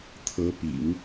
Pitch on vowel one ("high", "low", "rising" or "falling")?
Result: rising